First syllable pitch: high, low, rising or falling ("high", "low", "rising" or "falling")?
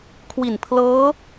low